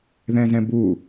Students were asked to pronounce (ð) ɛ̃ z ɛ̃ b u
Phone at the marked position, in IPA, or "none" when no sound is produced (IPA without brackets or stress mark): ð